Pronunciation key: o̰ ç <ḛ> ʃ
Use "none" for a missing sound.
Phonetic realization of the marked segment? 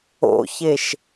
e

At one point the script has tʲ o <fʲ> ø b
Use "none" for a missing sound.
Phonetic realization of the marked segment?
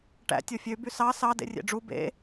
fʲ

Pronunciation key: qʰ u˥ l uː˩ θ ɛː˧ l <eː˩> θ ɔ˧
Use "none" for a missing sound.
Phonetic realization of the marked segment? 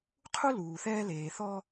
eː˩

